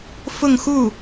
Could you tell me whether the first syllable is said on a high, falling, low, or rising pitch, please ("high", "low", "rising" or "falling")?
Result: falling